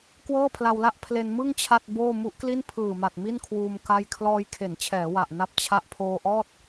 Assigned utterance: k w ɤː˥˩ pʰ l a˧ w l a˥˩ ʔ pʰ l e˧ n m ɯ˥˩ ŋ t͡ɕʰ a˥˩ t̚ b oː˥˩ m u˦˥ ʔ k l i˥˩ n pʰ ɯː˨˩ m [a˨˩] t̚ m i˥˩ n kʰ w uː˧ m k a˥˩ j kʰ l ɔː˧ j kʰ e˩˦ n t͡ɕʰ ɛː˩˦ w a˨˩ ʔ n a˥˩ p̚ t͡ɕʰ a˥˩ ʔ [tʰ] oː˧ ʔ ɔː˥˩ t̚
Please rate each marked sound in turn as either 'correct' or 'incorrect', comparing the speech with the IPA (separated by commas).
correct, incorrect